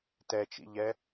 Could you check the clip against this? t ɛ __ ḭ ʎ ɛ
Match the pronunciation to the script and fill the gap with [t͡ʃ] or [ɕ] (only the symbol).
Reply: t͡ʃ